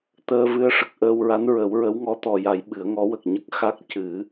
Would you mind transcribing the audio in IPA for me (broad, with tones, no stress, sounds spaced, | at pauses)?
t̪ əː˧ v ɨ˧˥ ə̯ ʂ ə˨˩ k̚ ʔ əː˧ w ɹ a˧˥ n ɹ ə˨˩˦ w ɹ ə˧˥ w ŋ ɔ˧˥ t̪ ɔ˨˩ j a˨˩˦ j ɓ ɨ˨˩˦ ə̯ ŋ ɔ˧˥ w ə˨˩ k̚ ɲ ə˦˥ k̚ x a˦˥ k̚ c ɨ˨˩˦